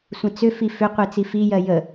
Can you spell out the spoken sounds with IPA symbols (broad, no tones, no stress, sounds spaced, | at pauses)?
sʷ ə̃ t͡s ʏ f i f ʏ qʷ e t͡s i f i j ɜ j ə